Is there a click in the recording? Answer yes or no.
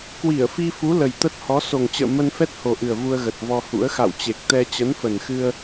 no